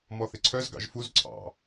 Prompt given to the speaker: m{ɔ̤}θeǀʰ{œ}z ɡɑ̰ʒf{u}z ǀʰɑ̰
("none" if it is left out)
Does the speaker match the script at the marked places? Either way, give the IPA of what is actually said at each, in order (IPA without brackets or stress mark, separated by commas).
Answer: ɔ, œ, u